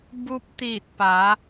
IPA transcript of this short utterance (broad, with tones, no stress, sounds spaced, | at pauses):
b u˧ p̚ t̪ iː˧˩ t̚ p a˩˧